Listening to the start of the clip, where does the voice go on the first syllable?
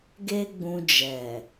high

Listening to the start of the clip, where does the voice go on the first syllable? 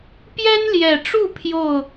high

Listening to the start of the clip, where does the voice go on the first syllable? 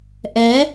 rising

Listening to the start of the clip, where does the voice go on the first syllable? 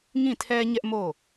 falling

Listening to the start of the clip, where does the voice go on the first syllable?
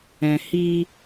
low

